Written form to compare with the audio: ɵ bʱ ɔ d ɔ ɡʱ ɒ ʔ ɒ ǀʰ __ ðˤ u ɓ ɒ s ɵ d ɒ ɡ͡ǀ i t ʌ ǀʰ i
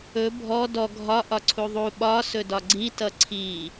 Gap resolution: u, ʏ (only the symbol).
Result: u